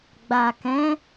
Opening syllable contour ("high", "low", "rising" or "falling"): low